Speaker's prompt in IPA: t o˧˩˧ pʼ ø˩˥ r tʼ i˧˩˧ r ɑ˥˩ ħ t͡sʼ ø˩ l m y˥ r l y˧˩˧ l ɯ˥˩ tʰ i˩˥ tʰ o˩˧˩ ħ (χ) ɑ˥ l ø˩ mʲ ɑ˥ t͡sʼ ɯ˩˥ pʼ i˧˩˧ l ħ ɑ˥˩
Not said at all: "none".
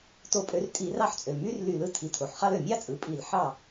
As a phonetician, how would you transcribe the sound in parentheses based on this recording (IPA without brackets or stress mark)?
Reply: χ